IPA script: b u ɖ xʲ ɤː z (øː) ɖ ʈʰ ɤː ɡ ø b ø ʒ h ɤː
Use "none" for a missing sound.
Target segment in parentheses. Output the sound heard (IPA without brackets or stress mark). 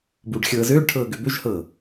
øː